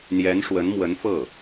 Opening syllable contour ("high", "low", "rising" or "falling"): rising